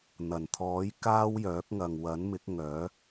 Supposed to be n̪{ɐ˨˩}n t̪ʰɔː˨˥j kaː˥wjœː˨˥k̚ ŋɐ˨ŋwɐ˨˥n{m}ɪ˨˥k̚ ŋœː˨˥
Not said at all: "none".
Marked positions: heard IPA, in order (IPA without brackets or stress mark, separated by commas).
ɐ˨˩, m